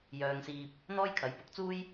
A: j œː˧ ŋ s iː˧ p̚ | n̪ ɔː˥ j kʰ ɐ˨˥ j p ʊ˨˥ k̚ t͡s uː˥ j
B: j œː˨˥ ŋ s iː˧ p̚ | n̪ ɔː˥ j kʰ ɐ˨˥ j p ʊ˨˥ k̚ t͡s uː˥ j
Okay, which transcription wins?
A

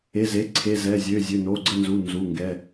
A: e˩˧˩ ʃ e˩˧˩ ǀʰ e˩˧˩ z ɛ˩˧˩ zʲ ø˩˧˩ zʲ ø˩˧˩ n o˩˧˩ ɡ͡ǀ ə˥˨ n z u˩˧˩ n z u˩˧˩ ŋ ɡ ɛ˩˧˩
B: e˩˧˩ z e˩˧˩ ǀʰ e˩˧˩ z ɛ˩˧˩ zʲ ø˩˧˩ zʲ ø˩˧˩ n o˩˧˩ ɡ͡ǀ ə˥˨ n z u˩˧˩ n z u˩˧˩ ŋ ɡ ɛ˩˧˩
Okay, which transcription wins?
B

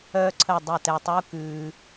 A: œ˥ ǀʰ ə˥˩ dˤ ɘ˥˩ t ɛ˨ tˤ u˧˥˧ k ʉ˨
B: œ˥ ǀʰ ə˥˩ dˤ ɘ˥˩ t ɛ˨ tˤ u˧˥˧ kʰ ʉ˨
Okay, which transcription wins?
A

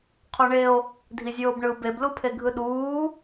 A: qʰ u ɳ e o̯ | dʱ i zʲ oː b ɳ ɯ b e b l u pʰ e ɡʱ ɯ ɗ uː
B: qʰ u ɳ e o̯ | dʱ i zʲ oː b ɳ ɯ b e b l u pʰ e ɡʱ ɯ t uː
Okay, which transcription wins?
A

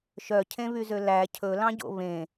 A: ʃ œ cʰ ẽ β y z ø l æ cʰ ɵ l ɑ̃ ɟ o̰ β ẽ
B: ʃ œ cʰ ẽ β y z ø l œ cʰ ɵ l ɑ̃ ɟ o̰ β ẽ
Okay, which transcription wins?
A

